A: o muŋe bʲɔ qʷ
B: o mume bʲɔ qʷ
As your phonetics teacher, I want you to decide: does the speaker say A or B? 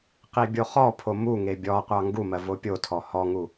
A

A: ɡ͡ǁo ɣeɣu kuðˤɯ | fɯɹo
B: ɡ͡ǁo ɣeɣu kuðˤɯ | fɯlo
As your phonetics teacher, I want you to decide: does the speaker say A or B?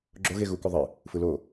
B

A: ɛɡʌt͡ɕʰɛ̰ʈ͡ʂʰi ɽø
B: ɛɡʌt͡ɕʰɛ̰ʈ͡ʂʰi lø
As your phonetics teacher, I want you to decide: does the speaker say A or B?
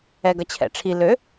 B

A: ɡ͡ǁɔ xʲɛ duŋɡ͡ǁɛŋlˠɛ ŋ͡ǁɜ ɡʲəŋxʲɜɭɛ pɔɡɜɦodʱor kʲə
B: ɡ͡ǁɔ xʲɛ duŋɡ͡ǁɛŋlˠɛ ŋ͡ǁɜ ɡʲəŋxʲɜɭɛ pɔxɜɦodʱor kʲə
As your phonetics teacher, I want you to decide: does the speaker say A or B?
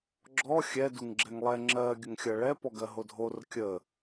A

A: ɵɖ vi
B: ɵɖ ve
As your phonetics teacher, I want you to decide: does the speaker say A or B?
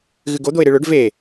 B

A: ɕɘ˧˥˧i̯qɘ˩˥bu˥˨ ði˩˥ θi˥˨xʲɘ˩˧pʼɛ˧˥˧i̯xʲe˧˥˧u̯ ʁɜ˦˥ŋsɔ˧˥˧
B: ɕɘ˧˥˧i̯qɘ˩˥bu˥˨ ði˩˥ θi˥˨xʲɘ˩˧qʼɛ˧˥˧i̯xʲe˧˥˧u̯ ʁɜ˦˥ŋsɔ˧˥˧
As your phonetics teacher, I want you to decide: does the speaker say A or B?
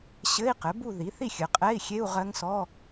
B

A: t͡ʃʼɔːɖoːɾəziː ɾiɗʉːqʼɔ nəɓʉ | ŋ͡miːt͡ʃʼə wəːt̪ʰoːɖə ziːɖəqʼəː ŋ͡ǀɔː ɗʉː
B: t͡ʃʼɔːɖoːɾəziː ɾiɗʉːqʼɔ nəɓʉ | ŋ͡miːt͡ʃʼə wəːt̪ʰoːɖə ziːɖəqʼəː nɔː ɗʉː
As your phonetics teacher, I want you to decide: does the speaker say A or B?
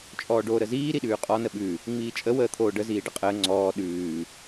A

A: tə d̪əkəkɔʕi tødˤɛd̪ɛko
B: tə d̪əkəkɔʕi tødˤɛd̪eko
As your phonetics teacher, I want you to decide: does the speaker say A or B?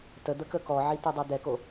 A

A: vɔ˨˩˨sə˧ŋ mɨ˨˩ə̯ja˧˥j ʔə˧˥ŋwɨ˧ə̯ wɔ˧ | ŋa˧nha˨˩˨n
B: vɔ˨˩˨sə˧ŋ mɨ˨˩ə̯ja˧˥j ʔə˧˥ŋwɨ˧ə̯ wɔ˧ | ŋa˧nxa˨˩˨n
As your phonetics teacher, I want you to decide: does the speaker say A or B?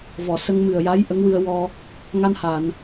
A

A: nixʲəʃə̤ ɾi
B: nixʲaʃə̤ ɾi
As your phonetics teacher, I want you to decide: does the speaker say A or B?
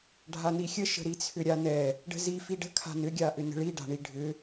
A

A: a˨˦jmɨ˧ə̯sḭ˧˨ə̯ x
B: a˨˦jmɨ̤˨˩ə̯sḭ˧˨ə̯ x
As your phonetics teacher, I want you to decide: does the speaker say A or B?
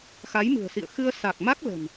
B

